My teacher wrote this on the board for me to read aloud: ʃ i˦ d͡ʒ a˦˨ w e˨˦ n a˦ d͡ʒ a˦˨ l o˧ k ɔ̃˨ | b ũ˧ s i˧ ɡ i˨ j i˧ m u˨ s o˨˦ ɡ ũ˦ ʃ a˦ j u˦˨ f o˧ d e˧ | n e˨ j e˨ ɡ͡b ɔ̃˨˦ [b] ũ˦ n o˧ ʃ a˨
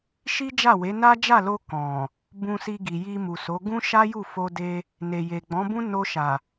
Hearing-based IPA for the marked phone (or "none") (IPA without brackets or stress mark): b